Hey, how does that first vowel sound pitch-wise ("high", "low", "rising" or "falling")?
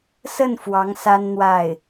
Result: falling